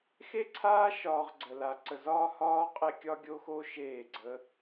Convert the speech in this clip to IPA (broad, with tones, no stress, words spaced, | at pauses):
xe˦ǀʰaː˦ ʃɒː˧ʁ ɡ͡ǀə˧la˧ ǀə˧zɒː˦hɒː˦ qʼe˦ kʲɒ˦ɡʲo˦xo˦ʃeː˦˨ ɡ͡ǀə˦